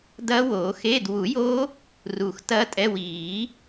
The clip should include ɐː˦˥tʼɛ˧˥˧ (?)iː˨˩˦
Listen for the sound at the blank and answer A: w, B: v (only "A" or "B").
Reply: A